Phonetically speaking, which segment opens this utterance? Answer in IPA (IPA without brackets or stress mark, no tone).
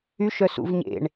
y